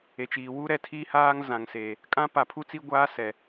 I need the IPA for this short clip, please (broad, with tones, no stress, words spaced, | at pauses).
e˨ t͡ʃiː˨wuː˦ɾɛ˨ tʰiː˦haː˦ŋ zã˨ŋseː˨ | kʼã˦pa˨pʰu˦t͡si˦ ɡʷaː˦ sɛ˨